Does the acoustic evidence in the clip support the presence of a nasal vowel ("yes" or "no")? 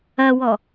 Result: no